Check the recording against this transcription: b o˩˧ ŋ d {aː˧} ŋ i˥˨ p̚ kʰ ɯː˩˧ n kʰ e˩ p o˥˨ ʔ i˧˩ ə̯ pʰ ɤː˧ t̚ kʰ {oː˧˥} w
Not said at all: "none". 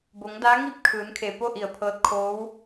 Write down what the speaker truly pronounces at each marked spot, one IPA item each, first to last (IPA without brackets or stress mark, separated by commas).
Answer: aː˧˥, oː˧˥